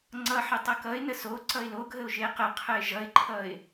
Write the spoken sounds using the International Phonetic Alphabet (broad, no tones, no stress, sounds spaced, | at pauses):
ŋ͡ǀ ʌ ħ ə tˤ ʌ k ʌ ɪ̯ n ə s o ǀ ʌ ɪ̯ l o ɡʱ ə ʊ̯ ʒ e q ə qʰ ə ɪ̯ ʒ ʌ ɪ̯ ǃʰ ʌ ɪ̯